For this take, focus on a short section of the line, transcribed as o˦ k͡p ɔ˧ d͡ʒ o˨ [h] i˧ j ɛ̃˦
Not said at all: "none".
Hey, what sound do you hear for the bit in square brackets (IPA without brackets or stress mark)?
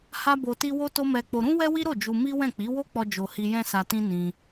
h